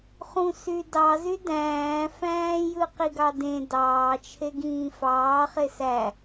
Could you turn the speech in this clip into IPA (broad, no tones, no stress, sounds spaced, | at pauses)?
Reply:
χ ũ s y d ɑ z y d æ̃ː f æ̃ː j ɯ q i ɡ ɑ d ẽ d ɑː t͡ʃʰ e ɡ ĩː f ɑː χ e s æ